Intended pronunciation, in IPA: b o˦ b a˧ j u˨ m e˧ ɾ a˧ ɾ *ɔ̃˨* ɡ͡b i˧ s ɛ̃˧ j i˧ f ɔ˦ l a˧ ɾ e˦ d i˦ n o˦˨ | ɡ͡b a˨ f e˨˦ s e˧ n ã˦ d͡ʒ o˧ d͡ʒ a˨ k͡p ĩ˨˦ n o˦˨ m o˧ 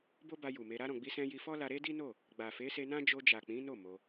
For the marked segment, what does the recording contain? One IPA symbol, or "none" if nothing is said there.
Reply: ɔ̃˨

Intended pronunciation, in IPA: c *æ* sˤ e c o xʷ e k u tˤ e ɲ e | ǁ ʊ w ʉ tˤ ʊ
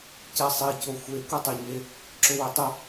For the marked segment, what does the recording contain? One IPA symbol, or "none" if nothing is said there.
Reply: ɛ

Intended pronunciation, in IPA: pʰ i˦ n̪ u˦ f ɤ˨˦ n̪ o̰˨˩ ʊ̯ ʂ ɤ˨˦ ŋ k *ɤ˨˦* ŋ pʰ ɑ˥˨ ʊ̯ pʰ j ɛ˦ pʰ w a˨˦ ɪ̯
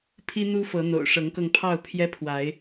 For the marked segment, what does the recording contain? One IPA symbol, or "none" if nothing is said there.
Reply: ɤ˧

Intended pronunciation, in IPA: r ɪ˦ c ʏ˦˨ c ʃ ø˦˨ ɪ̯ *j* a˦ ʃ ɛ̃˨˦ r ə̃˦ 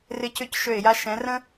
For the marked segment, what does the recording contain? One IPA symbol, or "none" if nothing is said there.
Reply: j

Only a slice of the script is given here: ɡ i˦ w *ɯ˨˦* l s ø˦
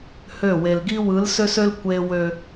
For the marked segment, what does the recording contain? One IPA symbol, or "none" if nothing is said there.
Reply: ɯ˨˦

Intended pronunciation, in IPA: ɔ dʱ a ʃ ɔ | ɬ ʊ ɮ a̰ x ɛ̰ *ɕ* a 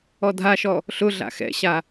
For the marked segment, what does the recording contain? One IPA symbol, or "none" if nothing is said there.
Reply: ɕ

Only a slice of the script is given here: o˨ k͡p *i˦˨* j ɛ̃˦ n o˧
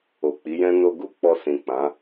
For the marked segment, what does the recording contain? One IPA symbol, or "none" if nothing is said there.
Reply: i˨˦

